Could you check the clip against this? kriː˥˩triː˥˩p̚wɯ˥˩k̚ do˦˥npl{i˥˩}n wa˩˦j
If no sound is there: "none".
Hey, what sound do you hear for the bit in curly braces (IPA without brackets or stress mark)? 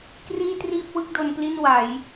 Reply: i˥˩